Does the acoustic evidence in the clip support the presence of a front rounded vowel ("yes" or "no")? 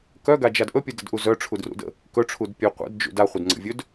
yes